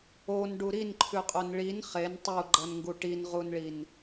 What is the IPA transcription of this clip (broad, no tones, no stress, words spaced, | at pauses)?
onɖu ɾinǃʰʉqʼon ɭin χen tˤuɡ͡ǃɐnŋɡu ʈinʁunɭin